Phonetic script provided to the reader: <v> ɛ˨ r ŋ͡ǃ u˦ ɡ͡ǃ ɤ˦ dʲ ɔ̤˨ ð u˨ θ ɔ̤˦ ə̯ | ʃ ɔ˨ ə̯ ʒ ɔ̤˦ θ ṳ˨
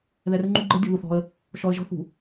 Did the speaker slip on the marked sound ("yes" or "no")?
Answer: yes